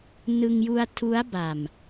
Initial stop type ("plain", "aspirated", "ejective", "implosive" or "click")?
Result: aspirated